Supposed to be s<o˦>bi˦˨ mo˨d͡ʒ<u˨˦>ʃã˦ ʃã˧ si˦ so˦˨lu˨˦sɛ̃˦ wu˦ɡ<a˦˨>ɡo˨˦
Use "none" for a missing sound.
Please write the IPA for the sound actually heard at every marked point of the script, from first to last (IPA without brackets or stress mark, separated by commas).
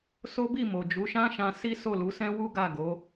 o˦, u˨˦, a˦˨